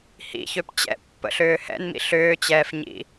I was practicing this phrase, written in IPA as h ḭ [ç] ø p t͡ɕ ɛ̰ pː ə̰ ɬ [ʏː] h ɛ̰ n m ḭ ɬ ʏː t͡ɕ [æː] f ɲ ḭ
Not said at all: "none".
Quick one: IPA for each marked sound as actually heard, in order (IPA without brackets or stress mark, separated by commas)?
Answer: ç, ʏː, ɛː